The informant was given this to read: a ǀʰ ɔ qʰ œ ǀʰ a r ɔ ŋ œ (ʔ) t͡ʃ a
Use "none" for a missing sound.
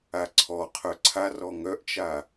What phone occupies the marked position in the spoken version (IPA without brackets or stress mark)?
ʔ